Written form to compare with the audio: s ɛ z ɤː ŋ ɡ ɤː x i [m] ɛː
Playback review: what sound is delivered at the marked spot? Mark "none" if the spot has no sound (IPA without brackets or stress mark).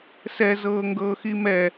m